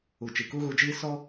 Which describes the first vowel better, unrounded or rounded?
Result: rounded